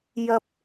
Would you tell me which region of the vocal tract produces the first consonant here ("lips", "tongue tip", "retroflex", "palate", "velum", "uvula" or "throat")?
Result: palate